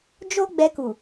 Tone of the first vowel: high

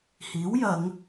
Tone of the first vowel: rising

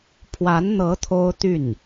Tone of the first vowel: rising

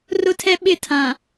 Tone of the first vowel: high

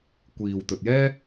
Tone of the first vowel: low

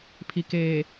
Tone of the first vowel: low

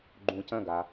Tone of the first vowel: low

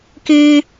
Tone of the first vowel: high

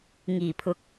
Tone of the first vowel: low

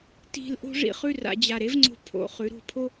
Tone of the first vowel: falling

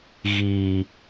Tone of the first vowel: low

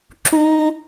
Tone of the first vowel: high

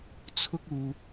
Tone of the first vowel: high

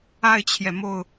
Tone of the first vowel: falling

